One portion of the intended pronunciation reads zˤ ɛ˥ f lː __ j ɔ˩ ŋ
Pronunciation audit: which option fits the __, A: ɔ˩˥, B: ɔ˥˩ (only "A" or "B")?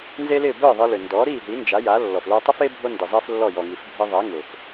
B